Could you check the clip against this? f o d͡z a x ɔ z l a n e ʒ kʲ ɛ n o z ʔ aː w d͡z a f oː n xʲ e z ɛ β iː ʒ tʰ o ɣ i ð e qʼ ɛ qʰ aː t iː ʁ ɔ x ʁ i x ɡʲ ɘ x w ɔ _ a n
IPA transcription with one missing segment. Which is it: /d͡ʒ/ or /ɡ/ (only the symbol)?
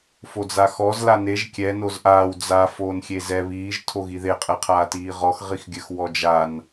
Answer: d͡ʒ